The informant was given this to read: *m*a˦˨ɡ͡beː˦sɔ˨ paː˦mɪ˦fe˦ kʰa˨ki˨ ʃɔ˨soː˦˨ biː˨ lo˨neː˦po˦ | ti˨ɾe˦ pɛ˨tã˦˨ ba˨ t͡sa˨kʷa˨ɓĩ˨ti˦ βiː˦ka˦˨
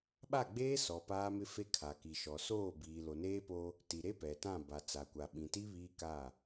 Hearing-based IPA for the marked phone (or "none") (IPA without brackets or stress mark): ɓ